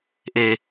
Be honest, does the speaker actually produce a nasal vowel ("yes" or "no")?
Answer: no